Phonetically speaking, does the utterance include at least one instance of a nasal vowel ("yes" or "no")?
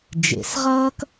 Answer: no